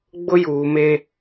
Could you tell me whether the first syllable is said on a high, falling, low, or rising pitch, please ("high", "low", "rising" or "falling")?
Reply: high